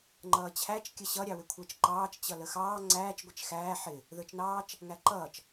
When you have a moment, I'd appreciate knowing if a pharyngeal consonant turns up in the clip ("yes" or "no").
yes